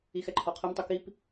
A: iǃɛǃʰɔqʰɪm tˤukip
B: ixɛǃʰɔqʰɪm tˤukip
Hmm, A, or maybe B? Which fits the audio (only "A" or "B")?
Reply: B